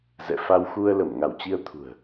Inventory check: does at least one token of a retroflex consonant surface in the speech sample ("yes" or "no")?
no